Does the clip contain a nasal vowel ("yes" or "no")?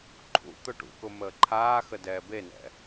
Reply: no